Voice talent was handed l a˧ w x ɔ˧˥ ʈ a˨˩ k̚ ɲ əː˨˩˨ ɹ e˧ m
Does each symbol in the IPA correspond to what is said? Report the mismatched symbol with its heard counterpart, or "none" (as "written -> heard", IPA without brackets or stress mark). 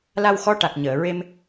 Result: none